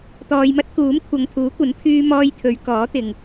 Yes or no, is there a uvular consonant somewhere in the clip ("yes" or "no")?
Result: no